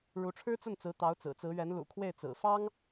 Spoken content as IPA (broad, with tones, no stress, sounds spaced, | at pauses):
ɻ u˧˥ ʈ͡ʂʰ ɻ̩˥ t͡s ə˥˩ n t͡s ɹ̩˧˥ t̪ ɑ˧˥ ʊ̯ t͡s ɹ̩˨˩ t͡s ɹ̩˧˥ ɥ ɛ˧˥ n l ṵ˨˩ kʰ w e˥˩ ɪ̯ t͡s ɹ̩˨˩ f ɑ˥ ŋ